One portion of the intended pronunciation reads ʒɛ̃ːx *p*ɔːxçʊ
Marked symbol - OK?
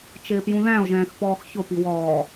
yes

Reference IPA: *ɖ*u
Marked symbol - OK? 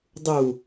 no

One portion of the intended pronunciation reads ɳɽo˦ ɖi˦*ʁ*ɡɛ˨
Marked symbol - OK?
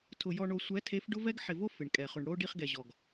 no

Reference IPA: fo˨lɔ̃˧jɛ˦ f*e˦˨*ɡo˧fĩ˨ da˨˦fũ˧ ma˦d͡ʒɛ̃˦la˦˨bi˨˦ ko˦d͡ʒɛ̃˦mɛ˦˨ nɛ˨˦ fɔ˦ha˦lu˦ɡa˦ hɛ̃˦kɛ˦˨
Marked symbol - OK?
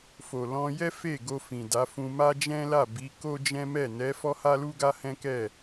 yes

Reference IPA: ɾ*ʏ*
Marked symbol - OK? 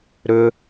yes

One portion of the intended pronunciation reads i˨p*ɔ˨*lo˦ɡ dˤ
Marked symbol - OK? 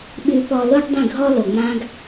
yes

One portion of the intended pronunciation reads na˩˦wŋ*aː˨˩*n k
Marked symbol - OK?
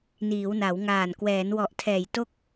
yes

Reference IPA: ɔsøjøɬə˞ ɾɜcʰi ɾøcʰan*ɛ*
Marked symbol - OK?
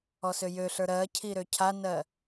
no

